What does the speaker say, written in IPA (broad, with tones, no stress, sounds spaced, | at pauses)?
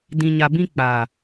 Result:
d ĩ˨ ɲ a˨ b ĩ˧ k͡p a˨